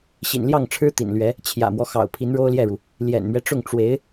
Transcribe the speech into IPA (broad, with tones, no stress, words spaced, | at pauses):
ɕḭ˨˩nljɑ˥˩ŋʈ͡ʂʰɻ̩˥ t̪ḭ˨˩nlɥɛ˧˥ | t͡ɕʰjä̰˨˩mwɔ˦xɑ̰˨˩ʊ̯ pʰi˧˥nɻo˥ʊ̯ljɛ˥˩ɻu˩ | ljɛ̰˨˩nmɥɛ˦ʈ͡ʂʊ˥˩ŋ ʈ͡ʂwe˧˥ɪ̯